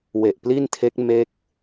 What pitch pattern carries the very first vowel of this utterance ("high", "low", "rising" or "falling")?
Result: low